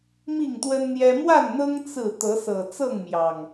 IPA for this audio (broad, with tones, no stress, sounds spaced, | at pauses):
m i˥˨ ŋ t̪ w ə˦ n n̪ j ɛ˦ m w a˥˨ n n̪ ɤ˦ ŋ t͡s ɹ̩˥˨ t̪ ɤ˨˦ s ɤ˨˩ t͡s ɤ˥˨ ŋ m j ɑ˨˩ ŋ